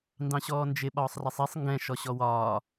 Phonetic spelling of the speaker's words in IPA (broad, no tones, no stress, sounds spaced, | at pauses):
n d ɑ̃ ɕ ɔː n d͡ʒ ɪ ɓ ɒː sˤ r ɛ sˤ i sˤ ŋ ɡ ɛ̃ ʃ ɔ ɕ ɔ w ɒː